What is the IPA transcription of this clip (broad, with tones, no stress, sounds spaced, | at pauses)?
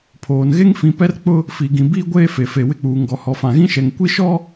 pʰ oː˨ n ɣ e˦ ŋ f ĩ˨ p ɛ˦ r k͡p ʊ˦ | f i˨ ɡ ĩ˨ b i˦ ɡʷ eː˦ f e˨ f e˨ w ɪ˦ k͡p uː˨ ŋ ɡ ɔ˨ h ɔ˨ f ã˨ ɣ ĩ˦ ʃ ɛ˨ ŋ kʷ i˦ ʃ ɔ˦